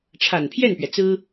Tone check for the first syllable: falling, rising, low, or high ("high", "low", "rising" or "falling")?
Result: low